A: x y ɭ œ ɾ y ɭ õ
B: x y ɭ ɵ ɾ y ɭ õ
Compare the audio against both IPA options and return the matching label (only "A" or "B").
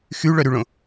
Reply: A